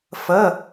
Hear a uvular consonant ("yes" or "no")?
no